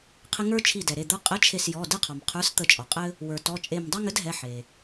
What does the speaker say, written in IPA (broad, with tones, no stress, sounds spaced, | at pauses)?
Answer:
qʰ ɪ˦ ŋ ə˞˦ t͡ʃʰ i˧˩ d ɛ˩ ɾ e˩˧˩ d̪ ə˞˦ qʼ ɘ˨˥ t͡ʃʰ e˧˩ s j ɔ˩˧˩ d ɪ˦ qʰ ɔ˩ m qʰ ə˞˨˥ s t̪ ə˧˩ t͡ʃʼ ɔ˩ qʼ ɘ˦ | w ə˞˩ t ɔ˩˧˩ t͡ʃʼ e˧˩ m dˤ ɛ˦ ŋ ɘ˨˥ d ɦ ɛ˩˧˩ ħ e˩